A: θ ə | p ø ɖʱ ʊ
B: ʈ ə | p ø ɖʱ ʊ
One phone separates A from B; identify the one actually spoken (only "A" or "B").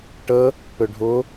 B